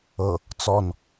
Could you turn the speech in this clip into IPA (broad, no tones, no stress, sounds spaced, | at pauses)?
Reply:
ɤ | t͡s ɔ n